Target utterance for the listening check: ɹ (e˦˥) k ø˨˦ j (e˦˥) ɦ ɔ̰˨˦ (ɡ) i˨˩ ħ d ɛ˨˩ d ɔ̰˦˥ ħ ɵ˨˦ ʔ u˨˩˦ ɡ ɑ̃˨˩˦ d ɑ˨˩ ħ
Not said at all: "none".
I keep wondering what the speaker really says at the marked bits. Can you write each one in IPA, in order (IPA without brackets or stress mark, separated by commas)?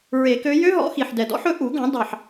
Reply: e˨˩˦, ø˦˥, x